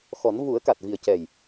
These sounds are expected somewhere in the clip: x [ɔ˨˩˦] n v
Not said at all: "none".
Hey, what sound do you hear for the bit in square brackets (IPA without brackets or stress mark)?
ɔ˨˩˦